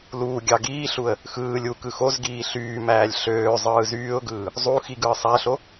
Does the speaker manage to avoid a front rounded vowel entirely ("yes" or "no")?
no